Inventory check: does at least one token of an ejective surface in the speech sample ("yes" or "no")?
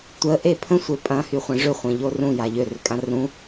yes